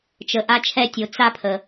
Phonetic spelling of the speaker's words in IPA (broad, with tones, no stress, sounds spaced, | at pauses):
t͡ʃ ə˩ ʔ a˨ t͡ʃʰ ɛ˨ tʲ o˩ t͡s a˨ pʰ ə˩